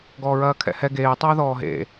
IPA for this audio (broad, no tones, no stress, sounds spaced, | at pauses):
ɡ ɔː ɹ ɐː kʰ ɛ̰ h ɛ ɡ eː tˤ ɐː ð ɔː ɦ ḛ